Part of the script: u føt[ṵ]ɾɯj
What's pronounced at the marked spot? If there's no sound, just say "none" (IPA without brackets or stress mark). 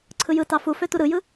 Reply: u